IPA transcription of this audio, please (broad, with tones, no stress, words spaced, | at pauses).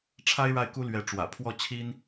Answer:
ʈ͡ʂʰa˥ɪ̯ɻa˥˩ɪ̯ku˥ lɥɛ˧˥ʈ͡ʂwä̰˨˩pʰwɔ˥˩t͡ɕʰi˥n